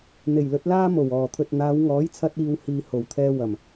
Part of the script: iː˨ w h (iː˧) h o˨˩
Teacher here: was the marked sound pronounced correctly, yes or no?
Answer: no